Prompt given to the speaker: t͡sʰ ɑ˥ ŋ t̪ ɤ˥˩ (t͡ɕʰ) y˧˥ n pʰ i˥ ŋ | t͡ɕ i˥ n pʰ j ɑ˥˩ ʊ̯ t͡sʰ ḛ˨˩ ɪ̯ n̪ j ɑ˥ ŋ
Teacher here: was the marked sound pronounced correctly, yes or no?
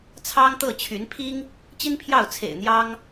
yes